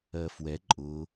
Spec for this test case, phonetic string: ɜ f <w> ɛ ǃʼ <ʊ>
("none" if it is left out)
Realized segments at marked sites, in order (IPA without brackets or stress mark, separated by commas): w, ʊ